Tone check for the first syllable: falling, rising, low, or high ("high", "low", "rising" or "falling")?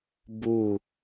falling